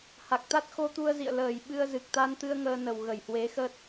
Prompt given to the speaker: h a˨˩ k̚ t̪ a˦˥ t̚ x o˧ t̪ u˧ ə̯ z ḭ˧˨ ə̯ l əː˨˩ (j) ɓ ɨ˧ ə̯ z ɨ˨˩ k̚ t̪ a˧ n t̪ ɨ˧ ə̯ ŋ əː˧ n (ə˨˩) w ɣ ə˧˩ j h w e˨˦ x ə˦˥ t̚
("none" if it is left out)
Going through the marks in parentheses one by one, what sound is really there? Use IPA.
j, ə˨˩

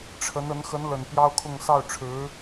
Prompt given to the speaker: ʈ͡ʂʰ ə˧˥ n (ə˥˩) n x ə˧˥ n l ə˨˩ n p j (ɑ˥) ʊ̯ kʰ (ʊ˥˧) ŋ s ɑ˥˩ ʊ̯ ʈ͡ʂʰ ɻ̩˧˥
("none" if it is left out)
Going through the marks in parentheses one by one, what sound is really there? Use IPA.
ə˧˥, ɑ˥, ʊ˥˧

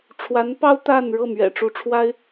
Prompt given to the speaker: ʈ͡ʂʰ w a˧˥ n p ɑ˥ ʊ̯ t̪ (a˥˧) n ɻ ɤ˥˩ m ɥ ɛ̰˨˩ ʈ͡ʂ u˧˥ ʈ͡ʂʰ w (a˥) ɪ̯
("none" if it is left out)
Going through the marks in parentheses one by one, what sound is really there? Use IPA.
a˥˧, a˥

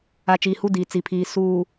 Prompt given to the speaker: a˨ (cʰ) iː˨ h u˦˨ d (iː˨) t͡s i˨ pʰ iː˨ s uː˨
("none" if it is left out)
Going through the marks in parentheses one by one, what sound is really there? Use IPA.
t͡ʃ, iː˨

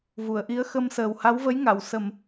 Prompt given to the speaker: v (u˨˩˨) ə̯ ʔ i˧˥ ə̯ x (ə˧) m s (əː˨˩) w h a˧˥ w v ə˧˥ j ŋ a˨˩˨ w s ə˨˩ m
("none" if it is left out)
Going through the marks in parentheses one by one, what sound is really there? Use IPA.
u˨˩˨, ə˧, əː˨˩

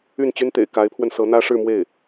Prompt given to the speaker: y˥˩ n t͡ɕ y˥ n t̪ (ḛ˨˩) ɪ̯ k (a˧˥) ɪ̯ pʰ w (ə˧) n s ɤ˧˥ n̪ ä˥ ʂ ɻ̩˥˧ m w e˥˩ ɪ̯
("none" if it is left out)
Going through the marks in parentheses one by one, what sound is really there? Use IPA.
ḛ˨˩, a˧˥, ə˧

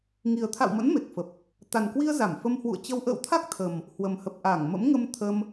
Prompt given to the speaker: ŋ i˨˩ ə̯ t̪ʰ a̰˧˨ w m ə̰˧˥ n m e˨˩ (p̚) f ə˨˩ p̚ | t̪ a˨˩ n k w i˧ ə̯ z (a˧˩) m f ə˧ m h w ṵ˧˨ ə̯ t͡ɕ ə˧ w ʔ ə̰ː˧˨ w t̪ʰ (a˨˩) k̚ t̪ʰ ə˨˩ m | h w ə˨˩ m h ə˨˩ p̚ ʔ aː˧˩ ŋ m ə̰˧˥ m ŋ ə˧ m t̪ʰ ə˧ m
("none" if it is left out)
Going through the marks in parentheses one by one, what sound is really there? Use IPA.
k̚, a˧˩, a˦˥

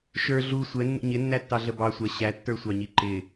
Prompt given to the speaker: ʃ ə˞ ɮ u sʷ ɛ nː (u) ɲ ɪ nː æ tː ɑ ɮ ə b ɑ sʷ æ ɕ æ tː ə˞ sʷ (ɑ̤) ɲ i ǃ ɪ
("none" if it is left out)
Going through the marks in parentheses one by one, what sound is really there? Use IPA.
ṵ, ɑ

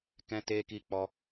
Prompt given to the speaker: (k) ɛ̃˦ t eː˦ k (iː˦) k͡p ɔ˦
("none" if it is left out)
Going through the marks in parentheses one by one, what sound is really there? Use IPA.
k, iː˦

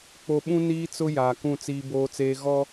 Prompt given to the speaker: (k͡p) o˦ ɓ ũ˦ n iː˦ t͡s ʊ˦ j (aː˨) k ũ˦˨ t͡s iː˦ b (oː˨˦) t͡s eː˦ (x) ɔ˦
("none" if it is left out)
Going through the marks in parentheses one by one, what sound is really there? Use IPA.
k͡p, aː˨, oː˦, ɣ

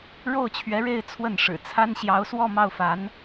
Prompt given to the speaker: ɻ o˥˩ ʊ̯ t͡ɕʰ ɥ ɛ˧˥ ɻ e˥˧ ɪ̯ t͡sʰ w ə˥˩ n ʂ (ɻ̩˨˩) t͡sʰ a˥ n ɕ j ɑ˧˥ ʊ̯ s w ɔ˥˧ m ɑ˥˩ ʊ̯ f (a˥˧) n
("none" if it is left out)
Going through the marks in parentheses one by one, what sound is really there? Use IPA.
ɻ̩˨˩, a˧˥

